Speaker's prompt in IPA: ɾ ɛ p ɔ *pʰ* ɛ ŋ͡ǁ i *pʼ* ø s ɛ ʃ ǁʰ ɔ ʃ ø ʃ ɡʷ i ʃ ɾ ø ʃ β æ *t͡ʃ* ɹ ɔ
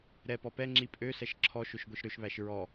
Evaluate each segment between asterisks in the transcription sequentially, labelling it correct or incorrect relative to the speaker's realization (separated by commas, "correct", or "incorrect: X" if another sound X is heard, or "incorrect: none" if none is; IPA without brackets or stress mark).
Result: incorrect: p, correct, incorrect: ʃ